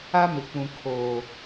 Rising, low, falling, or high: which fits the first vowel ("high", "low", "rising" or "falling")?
high